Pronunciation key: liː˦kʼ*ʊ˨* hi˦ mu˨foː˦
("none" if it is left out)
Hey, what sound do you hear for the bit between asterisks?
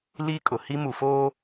ʊ˨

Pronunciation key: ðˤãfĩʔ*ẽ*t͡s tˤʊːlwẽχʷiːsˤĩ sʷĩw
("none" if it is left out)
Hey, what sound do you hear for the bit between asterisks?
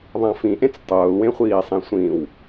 ẽ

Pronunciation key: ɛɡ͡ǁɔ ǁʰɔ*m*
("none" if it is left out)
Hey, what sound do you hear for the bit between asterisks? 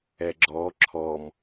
m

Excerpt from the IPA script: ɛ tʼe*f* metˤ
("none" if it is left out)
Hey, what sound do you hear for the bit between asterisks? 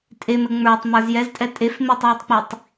f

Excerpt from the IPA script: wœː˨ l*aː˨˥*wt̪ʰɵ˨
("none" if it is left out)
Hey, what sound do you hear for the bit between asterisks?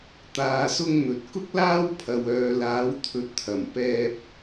aː˨˥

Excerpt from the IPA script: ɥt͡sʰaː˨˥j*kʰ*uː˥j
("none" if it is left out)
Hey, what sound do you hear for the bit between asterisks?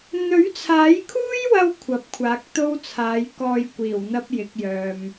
kʰ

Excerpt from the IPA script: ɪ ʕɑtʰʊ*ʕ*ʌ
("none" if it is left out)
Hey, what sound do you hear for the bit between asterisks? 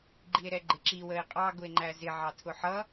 ħ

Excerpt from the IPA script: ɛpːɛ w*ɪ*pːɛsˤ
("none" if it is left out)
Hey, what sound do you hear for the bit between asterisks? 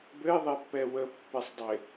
ə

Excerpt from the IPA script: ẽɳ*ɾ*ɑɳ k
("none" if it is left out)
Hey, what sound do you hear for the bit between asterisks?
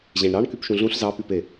ɾ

